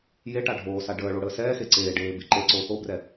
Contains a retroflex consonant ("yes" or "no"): yes